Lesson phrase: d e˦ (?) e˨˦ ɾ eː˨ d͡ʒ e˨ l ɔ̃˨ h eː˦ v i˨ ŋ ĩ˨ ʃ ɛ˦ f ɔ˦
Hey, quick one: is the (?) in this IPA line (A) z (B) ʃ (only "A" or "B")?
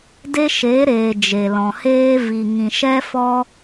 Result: B